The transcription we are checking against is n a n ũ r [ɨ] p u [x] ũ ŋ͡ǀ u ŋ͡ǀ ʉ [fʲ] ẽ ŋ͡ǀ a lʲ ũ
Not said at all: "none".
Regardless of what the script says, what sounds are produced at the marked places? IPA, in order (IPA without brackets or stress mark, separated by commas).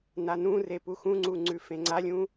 e, x, f